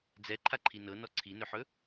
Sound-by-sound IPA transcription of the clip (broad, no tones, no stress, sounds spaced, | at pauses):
d͡z ɛ ǃʰ a ǃʰ i n ɤ n ɔ ǀʰ i n ɵ ħ ɵ